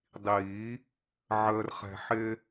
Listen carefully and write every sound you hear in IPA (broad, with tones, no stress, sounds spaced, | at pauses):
dˤ iː˨˩˦ | ʕ əː˨ r χ ɛ̤˨ ħ ɪ˦